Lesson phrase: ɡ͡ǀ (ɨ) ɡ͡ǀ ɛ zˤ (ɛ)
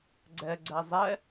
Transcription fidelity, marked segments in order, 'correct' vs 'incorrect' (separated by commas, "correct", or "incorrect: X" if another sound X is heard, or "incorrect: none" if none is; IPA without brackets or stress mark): incorrect: ɛ, correct